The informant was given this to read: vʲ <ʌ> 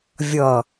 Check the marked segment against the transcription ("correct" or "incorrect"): correct